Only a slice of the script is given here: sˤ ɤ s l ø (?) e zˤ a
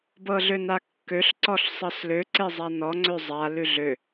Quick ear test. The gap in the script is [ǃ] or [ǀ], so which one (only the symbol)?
ǀ